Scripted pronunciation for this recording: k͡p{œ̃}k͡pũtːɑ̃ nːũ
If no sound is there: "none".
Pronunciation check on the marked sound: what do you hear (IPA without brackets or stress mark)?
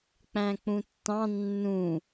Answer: æ̃